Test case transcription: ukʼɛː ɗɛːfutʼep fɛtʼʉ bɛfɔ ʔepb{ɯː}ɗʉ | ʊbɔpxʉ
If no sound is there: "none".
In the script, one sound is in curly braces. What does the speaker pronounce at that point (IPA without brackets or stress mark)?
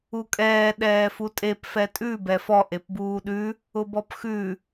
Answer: uː